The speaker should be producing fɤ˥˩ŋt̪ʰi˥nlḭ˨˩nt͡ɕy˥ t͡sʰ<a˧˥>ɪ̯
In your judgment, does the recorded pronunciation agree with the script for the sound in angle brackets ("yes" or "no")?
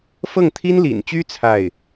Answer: no